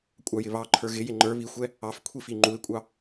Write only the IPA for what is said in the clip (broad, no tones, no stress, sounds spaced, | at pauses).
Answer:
kʷʼ ɑ j ɪ β ɑ ǃʰ ə˞ ɣ ɪ j ɪ ŋ͡ǃ ə˞ β i xʷ ɛ | ɑ f kʷʰ i f i ŋ͡ǃ u ɪ̯ kʷʼ ɑ